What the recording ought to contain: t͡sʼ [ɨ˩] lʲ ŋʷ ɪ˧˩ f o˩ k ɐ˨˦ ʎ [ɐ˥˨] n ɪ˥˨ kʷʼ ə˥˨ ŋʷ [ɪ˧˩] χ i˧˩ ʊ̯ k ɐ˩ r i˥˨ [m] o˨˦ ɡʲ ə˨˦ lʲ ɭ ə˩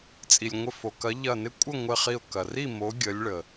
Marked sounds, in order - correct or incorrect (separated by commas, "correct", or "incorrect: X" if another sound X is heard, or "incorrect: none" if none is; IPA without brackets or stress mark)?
incorrect: i˩, incorrect: ɐ˧˩, correct, correct